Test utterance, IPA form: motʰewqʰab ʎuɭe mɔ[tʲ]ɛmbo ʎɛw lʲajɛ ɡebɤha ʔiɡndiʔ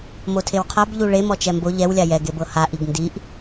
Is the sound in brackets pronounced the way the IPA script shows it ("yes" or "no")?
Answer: no